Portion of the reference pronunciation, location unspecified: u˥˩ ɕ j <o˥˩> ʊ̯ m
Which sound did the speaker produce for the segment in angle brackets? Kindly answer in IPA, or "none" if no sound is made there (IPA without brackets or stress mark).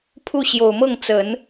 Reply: o˨˩